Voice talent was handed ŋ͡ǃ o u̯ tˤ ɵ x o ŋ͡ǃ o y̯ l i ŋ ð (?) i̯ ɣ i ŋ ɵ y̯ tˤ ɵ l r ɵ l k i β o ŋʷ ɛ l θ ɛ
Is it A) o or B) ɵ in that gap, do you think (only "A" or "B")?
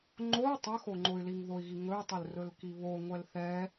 A